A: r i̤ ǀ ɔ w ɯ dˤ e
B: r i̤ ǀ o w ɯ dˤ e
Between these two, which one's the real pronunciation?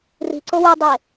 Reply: B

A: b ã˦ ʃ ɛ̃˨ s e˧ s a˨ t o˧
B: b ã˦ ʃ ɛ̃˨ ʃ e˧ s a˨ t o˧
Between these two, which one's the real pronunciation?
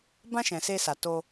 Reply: A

